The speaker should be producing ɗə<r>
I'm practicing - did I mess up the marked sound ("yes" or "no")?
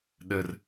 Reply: no